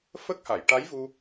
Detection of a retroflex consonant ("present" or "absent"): present